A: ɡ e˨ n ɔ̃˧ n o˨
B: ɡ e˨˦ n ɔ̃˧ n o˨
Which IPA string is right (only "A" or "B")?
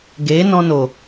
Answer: B